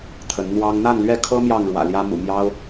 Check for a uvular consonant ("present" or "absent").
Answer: absent